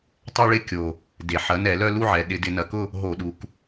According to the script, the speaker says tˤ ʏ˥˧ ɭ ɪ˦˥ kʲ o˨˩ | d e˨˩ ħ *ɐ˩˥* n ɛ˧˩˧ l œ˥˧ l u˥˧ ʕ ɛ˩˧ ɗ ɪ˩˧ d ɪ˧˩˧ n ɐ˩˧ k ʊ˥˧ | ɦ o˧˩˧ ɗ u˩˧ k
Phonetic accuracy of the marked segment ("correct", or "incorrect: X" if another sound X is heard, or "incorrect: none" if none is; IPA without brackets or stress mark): correct